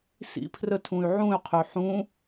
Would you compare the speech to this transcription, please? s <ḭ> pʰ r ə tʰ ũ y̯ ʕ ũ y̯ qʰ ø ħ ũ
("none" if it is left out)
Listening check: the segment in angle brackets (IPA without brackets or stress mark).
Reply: ḭ